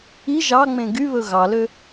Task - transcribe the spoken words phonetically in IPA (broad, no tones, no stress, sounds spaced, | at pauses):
i ʒ ɑ ŋ͡m ẽ ɡ y β ɵ ɣ ɑ l ø